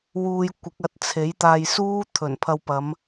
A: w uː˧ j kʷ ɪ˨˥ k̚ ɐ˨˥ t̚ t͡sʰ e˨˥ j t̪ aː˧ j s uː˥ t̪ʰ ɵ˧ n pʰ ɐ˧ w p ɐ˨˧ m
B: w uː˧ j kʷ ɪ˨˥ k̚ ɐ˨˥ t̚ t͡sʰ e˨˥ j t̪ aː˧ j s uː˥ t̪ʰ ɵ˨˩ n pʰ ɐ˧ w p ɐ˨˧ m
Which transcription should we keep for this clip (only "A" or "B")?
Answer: B